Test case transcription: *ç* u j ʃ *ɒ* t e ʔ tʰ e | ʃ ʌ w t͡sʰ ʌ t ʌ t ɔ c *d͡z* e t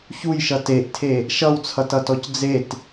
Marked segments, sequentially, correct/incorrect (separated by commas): correct, incorrect, correct